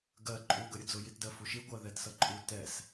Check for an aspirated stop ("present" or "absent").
absent